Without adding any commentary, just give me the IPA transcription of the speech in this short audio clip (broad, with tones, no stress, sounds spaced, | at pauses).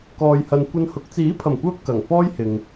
k ɔː˨ j h ɐ˨ n kʷ ɐ˧ n h ʊ˨˥ k̚ t͡s iː˨˥ pʰ ɐ˨˩ m kʷ œː˧ p̚ k ɐ˨˩ ŋ f ɔː˥ j h ɪ˨ ŋ